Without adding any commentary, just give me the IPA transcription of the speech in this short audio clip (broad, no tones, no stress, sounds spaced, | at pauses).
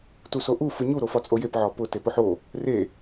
t u s o ʔ u f ɯ ɲ u ɾ o f ɒ t͡sʼ o j e p ʕ ɒ p ʊ t e p ʊ ħ o | r e